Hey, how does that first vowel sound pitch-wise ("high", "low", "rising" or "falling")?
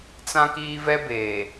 high